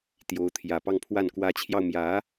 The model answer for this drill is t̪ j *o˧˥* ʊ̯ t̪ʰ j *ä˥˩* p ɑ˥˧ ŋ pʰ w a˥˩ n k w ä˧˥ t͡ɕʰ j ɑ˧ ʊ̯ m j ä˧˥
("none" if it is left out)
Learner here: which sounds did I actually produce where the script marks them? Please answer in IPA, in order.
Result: o˧˥, ä˨˩

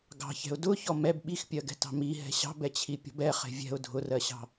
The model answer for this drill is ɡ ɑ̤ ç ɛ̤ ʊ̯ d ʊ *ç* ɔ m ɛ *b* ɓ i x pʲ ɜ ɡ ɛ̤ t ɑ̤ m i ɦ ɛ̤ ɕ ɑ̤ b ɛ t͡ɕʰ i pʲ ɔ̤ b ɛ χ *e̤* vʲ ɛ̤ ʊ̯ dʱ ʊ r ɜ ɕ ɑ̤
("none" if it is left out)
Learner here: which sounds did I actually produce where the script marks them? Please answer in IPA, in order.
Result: ç, b, e̤

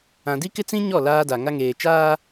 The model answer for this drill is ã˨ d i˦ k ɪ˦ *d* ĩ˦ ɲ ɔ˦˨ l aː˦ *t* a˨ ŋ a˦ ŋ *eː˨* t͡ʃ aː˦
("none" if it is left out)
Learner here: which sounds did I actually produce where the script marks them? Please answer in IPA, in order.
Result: t͡s, d, eː˨

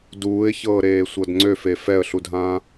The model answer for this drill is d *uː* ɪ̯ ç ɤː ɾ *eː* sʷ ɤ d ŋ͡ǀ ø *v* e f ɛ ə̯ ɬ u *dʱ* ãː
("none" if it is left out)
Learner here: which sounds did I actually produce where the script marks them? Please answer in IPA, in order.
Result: uː, eː, f, dʱ

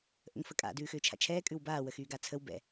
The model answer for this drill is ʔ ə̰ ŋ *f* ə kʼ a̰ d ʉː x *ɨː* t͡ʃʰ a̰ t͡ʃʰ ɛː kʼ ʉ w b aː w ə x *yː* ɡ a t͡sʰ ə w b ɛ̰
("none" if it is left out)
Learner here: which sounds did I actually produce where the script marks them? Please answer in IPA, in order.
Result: f, ʏː, yː

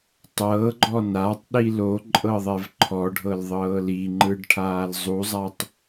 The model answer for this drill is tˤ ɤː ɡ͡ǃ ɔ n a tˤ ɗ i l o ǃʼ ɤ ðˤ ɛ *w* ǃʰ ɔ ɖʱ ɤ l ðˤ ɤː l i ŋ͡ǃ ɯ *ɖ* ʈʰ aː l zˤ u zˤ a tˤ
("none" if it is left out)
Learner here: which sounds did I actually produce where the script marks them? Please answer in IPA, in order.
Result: v, ɖ

